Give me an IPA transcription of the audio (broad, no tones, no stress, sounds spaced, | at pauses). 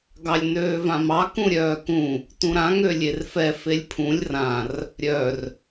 ɡ ɑ lʲ n øː v ã m ɑ k ũ ɾʲ œː k ũ | t ũ ɾ ã ŋ ø lʲ e r f ɛ f e lʲ pʰ ũ lʲ r ã r | ɾʲ œ r